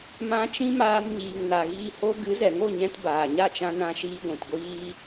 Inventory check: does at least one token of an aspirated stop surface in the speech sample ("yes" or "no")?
no